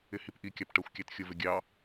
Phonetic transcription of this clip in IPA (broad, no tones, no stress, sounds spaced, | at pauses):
ɪ h i p ʔ i kʲ ɑ p ʈ ɜ xʷ kʲ æ t xʲ ʊ v ɪ ɡʲ ɑ